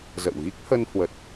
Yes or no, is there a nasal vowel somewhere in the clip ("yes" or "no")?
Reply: no